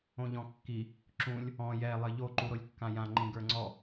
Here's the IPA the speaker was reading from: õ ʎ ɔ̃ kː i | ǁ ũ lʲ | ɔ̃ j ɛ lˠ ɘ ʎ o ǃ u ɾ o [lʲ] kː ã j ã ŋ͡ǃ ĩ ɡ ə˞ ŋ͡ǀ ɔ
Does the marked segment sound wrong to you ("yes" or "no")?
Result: no